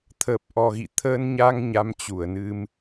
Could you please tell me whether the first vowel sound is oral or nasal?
oral